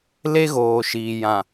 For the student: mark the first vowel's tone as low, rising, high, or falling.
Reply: high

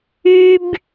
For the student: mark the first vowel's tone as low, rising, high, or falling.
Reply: high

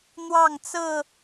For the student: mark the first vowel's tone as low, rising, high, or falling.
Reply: falling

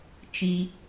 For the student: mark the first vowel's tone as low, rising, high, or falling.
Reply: high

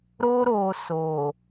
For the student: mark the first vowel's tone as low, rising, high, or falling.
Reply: high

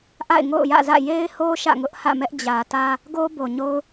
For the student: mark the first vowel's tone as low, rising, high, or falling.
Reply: falling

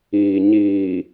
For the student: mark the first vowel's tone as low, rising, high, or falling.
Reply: low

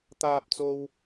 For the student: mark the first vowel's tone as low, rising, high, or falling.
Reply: high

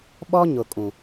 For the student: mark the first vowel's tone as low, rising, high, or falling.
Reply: high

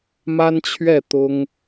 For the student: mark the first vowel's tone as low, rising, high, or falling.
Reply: high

